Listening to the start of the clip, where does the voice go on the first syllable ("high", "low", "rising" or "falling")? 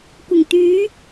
low